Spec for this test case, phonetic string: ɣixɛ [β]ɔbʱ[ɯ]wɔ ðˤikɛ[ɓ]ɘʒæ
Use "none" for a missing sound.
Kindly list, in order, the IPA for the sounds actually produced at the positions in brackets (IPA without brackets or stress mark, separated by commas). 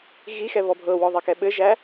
β, ɤ, ɓ